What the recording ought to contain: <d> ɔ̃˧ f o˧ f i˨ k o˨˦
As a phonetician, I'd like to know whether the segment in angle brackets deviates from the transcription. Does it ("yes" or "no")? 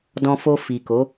no